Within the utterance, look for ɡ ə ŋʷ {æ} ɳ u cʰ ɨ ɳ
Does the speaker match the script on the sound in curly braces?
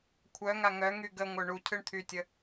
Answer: no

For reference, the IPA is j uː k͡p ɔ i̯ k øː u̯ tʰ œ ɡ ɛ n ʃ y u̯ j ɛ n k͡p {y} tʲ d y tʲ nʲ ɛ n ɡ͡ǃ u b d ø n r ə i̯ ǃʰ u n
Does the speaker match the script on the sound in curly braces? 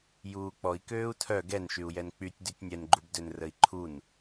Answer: yes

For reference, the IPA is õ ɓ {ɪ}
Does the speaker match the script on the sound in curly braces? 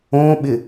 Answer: yes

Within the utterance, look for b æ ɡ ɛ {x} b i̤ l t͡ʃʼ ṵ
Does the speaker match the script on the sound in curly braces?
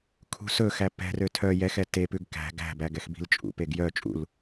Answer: yes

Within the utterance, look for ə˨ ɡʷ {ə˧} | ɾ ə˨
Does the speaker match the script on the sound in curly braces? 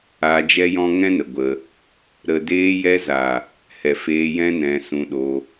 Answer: yes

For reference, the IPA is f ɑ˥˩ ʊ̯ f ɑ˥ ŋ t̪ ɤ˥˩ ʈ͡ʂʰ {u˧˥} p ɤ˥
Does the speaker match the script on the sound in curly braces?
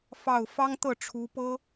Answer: yes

